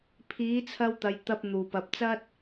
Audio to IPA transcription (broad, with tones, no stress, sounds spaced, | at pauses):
pʰ iː˨˥ t͡sʰ ɐ˧ w t̪ ɐ˨ j t̪ ɐ˧ p̚ n̪ uː˨˩ p ɐ˨ p̚ t͡s ɐ˥ t̚